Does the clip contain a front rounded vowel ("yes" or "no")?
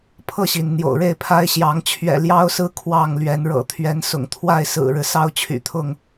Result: yes